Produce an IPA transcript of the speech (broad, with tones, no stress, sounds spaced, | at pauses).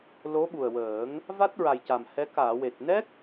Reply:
l o˧˥ ɓ u˨˩ ə̯ w əː˨˩˦ ŋ | v a˦˥ t̚ ɹ a˨˩ j c a˨˩ m h ɛ˧˥ k aː˨˩˨ w e˨˩ t̚ n ɛ˦˥ k̚